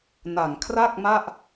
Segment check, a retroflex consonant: absent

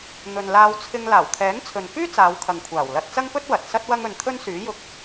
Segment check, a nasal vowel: absent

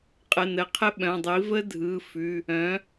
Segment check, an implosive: present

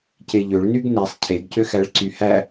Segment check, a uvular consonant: absent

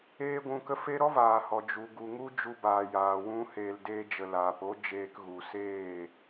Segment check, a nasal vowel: present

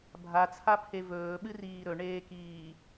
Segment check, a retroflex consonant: present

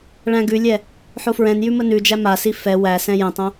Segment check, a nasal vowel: present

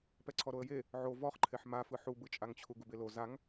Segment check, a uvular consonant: present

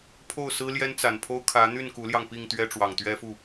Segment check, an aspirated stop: present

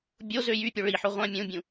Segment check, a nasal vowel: present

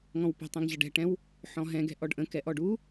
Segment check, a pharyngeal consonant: present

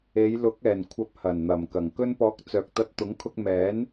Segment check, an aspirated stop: present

